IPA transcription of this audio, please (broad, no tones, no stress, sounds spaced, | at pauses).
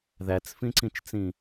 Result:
ð æ t͡s f ĩ ǀ ĩ t͡ʃ t͡s ĩ